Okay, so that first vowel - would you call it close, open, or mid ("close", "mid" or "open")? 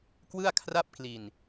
close